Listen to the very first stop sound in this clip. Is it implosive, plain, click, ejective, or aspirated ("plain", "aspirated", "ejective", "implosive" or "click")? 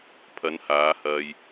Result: aspirated